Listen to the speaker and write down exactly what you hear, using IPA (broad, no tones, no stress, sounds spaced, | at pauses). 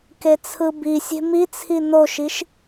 k e t͡sʰ ɯ b i sʲ e̤ m i t͡sʰ i n o ʃ i ʃ